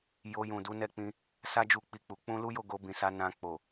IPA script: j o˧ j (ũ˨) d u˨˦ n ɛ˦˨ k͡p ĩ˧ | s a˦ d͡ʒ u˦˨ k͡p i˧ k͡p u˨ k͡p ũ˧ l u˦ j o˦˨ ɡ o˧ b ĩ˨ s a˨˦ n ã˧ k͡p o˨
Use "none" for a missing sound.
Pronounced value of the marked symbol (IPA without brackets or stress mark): ũ˨